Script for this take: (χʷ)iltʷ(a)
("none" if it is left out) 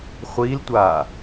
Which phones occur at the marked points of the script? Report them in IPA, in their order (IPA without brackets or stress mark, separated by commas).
χʷ, a